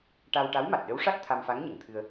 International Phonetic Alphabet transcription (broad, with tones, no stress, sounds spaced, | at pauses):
ʈ a˧ w ʈ a˧˥ w m a˨˩ t̚ ɗ ə˧˥ w ʂ a˦˥ t̚ t̪ʰ a˧ m f a˧˥ ŋ ɲ ə˨˩˨ ŋ t̪ʰ ɨ˧ ə̯